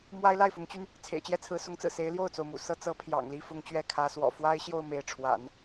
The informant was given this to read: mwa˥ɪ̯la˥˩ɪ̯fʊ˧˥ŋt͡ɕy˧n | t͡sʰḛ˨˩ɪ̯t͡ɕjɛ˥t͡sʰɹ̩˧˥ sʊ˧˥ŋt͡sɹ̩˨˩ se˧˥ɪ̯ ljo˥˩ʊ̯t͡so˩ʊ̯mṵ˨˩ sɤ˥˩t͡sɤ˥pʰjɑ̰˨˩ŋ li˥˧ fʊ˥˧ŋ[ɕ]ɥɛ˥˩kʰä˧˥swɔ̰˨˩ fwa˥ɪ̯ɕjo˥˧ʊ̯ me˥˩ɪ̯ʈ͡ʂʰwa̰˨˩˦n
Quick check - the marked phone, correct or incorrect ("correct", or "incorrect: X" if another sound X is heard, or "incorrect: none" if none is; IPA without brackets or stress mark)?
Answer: incorrect: t͡ɕ